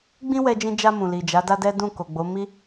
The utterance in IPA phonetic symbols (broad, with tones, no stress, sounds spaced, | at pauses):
ɡ͡b ĩ˦ w ɛ˧ d͡ʒ ĩ˧ d͡ʒ a˧ m ũ˨ l i˨ d͡ʒ a˨˦ d a˦ d ɛ˦ d ũ˦˨ k o˨ ɡ͡b o˨˦ m i˦